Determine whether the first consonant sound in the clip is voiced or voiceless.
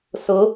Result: voiceless